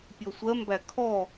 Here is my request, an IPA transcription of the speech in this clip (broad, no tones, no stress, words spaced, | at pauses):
pʲɔsʷɜmbæ kʰɔ